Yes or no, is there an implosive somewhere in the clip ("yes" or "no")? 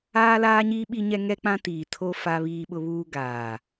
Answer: yes